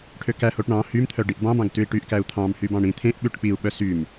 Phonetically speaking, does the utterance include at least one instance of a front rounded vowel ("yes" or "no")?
yes